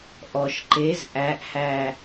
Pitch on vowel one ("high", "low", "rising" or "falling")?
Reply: low